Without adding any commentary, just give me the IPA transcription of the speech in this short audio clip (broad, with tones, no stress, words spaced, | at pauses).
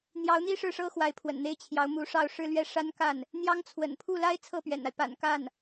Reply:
n̪jɑ˧˥ʊ̯n̪i˥ ʂɻ̩˥˩ʂɤ˥ xwa˧˥ɪ̯pʰwə̰˨˩n n̪e˥˩ɪ̯t͡ɕʰjɑ˧˥ʊ̯mu˧˥ ʂɑ˥˧ʊ̯ ʂɻ̩˥˧lɥɛ˥˩ ʂa˥nka˥˩n | n̪jɑ˥ŋt͡sʰwə̰˨˩n pʰu˥˩la˥ɪ̯ t͡sʰɤ˥˩pɥɛ̰˨˩na˦ɪ̯ pa̰˨˩nka˥˩n